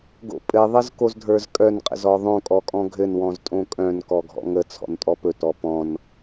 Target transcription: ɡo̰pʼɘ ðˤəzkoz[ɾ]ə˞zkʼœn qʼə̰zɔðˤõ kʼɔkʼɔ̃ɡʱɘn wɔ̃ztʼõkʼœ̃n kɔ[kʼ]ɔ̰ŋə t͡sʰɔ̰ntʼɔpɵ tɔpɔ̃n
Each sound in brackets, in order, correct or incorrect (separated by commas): incorrect, incorrect